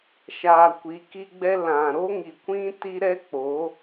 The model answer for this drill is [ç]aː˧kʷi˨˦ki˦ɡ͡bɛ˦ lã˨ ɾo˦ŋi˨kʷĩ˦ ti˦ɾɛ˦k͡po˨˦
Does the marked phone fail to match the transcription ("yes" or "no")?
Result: yes